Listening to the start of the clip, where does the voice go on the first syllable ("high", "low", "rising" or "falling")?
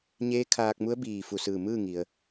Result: rising